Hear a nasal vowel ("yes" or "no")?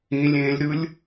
yes